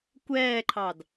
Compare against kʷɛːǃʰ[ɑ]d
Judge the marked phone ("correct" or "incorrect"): correct